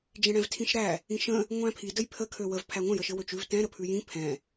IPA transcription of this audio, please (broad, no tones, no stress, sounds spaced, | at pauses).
d͡ʒ ẽ ɽ ɛ̃ v tʰ ĩ ʃ ɾ æ | ĩ ʃ ə̃ | ŋʷ æ̃ pʰ i d ə j pʰ ə kʰ ø w ə v pʰ æ ŋʷ ə̃ j ə ʃ ɘ w ø t͡ʃ ʉ v t ɛ̃ ɾ ə pʰ ʉ j ĩ pʰ ɛ̃